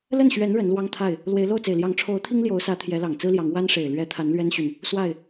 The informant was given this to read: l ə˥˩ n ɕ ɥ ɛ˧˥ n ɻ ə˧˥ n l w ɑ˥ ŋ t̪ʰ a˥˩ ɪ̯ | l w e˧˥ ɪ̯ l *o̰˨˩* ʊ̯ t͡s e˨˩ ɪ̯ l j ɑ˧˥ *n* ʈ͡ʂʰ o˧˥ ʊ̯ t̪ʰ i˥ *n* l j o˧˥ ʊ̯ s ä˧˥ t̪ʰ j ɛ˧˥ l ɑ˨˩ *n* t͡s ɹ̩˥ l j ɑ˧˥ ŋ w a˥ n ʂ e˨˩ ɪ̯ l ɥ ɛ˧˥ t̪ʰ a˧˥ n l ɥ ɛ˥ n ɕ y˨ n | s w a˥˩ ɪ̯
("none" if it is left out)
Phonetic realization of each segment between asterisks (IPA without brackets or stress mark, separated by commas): o˥˩, ŋ, ŋ, ŋ